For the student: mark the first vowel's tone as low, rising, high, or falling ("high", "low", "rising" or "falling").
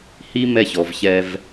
high